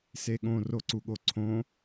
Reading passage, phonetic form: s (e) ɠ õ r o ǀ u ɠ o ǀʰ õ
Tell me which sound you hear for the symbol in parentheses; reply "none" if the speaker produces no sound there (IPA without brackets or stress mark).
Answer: e